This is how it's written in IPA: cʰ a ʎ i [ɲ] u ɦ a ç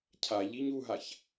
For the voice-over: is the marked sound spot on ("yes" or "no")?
yes